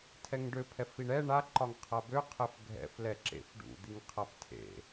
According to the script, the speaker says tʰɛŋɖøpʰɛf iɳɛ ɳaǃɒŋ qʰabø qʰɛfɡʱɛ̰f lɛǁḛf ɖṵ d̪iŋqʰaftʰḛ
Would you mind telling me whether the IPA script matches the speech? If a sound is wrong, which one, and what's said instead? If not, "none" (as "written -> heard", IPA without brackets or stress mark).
none